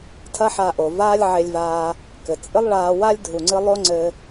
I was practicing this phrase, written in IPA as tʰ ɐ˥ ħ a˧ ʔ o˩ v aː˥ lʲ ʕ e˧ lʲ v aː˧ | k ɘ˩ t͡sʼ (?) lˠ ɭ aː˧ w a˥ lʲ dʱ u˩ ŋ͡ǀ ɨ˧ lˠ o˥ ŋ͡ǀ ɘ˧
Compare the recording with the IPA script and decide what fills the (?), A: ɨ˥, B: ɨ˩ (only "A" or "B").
A